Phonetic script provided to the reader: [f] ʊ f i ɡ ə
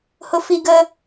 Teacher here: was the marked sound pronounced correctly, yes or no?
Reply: no